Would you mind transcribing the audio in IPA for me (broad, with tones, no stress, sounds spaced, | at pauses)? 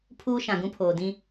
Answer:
pʰ uː˦ ʃ ã˨ ɡ ũ˦ pʰ oː˨ d ĩ˦